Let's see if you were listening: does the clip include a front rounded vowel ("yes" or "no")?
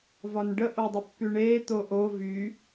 yes